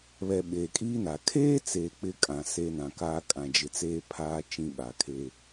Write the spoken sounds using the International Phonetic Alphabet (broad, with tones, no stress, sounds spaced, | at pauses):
β ɛ˨ ɓ eː˨ kʼ iː˦ n a˨ kʰ eː˦ t͡s eː˨ k͡p ɪ˦ kʼ ã˨ s e˦ n ã˨ k aː˦ kʼ ã˨ d͡ʒ ɪ˨ t͡s eː˦ pʰ aː˦ t͡ʃ ĩ˦ ɓ a˨ kʰ e˦